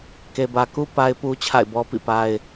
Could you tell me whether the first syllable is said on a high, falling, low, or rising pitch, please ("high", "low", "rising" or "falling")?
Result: low